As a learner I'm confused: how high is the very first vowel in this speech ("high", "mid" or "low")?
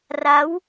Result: low